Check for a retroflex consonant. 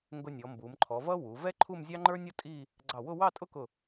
absent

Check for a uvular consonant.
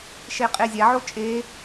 present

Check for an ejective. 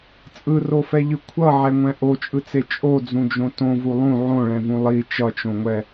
present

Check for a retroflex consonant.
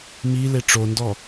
present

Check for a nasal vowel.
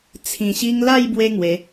present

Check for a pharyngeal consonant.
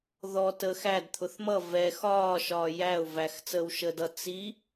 absent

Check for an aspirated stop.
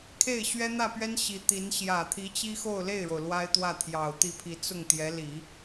present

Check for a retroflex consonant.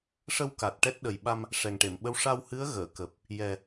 present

